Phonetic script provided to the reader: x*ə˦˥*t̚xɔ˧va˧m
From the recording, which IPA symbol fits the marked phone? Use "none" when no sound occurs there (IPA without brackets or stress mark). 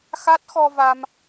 a˦˥